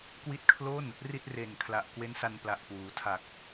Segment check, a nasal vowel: absent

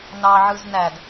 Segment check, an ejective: absent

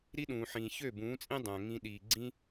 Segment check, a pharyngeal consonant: present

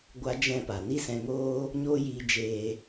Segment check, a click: absent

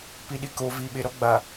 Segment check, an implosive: present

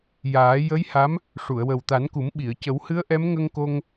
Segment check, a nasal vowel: absent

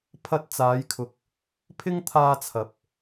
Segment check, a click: absent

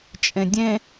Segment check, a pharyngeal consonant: absent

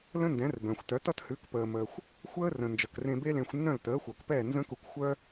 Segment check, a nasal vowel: present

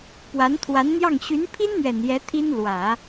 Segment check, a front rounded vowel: present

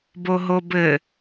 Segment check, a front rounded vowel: absent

